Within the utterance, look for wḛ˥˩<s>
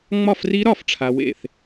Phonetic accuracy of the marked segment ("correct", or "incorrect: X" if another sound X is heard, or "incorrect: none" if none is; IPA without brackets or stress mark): incorrect: θ